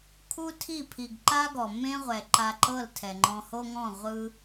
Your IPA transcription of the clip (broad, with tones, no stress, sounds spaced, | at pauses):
kʰ u˦ tʰ i˦˨ pʰ i˨ ɡ ǃ a˦ ɡ ɔ˨ m ẽ˦ ʁʷ ɛ˨ ǃ a˧ ǃ ɤ˦˨ l tʰ ɛ˨ ŋ͡ǃ ɔ̃˧ h o˦ ŋ ɔ̃˦˨ ʁʷ ɯ˦